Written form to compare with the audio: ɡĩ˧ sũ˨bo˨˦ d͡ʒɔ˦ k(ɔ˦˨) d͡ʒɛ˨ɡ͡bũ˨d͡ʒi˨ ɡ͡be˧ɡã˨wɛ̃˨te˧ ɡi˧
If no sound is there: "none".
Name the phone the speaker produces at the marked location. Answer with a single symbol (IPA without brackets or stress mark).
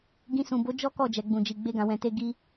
ɔ˦˨